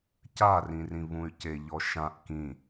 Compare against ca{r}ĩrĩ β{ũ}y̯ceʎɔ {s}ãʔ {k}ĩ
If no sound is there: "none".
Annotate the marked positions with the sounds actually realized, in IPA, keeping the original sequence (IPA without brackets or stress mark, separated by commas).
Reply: r, ũ, ʃ, k